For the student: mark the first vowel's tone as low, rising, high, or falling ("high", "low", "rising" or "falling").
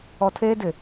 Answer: low